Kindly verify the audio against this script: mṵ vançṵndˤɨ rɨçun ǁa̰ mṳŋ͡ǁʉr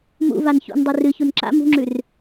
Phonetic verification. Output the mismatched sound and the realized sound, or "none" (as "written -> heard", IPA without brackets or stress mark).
none